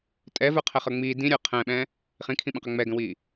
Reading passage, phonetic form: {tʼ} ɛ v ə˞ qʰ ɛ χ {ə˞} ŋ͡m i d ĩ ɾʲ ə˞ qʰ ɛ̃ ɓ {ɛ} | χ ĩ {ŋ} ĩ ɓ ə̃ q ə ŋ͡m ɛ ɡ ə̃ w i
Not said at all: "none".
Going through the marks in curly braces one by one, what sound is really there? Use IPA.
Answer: tʼ, ə˞, ɛ̃, kʰ

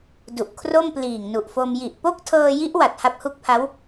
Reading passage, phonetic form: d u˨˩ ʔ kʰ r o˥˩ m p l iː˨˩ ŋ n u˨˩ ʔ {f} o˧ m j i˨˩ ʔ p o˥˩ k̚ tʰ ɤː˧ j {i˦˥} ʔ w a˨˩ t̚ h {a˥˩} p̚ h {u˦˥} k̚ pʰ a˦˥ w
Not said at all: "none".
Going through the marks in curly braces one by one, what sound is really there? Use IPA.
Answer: f, i˦˥, a˦˥, u˦˥

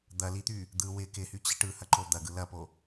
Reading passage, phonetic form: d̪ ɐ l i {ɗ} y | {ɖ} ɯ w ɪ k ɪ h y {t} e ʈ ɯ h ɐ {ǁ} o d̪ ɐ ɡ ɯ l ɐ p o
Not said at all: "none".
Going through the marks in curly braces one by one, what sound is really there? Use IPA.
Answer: t̪, d̪, t͡ɕ, ǃ

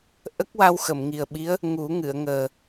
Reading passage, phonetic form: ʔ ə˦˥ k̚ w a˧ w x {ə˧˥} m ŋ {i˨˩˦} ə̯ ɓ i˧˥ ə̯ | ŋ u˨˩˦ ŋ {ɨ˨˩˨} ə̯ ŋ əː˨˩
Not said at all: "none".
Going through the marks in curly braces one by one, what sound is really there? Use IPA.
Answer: ə˨˩˨, i˨˩, ɨ˨˩˨

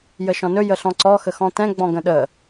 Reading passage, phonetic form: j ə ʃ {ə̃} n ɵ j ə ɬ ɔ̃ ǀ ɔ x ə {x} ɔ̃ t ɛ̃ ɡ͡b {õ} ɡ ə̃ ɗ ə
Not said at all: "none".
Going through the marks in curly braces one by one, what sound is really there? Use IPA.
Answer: ɔ̃, x, ɔ̃

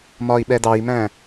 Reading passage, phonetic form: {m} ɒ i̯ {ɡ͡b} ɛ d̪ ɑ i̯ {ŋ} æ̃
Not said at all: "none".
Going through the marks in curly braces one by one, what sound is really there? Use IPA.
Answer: m, ɓ, m

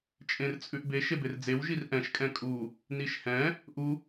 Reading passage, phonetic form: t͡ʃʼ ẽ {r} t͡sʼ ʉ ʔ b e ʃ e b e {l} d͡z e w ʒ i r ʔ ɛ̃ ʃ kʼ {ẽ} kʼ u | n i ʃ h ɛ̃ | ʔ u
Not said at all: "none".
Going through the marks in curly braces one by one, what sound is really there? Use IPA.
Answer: r, r, ɛ̃

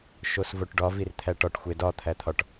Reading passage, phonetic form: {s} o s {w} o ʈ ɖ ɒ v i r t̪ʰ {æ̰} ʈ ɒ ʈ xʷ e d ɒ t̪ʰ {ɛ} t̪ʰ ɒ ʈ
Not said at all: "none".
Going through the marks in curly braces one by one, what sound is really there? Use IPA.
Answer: ʃ, v, æ, æ

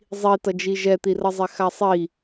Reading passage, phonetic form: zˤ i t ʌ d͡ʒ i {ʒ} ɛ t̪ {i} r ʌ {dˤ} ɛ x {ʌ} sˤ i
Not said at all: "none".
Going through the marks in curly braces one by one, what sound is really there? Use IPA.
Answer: ʒ, i, zˤ, a

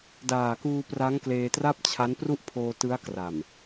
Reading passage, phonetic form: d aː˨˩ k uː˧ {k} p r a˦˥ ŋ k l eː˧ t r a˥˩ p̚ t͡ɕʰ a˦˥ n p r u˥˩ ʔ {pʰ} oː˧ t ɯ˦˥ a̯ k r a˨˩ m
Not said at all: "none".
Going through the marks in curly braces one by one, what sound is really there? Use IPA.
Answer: none, pʰ

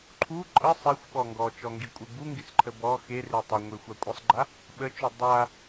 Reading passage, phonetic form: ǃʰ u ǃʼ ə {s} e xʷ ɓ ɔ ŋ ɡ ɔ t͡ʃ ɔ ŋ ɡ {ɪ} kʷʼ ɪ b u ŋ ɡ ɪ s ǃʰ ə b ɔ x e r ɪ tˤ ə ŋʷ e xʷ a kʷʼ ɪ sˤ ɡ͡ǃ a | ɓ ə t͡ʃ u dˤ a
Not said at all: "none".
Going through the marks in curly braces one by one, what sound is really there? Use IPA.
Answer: sˤ, i

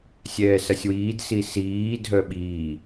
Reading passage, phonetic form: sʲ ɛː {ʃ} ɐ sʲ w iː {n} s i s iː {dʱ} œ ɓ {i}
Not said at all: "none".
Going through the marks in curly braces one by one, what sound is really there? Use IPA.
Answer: s, d, dʱ, iː

